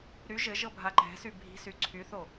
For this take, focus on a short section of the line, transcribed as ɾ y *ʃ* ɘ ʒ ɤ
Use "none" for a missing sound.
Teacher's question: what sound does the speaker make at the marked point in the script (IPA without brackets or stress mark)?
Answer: ʒ